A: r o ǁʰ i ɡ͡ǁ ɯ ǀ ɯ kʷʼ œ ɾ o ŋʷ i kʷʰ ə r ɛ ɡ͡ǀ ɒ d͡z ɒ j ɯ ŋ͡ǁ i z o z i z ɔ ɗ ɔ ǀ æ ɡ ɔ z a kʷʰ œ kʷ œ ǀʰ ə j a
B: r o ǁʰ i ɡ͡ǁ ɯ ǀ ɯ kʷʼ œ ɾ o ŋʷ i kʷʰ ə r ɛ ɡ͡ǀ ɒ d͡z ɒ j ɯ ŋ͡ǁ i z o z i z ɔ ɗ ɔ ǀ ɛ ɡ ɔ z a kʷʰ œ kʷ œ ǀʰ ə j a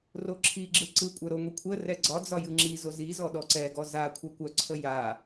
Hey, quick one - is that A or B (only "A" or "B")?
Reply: B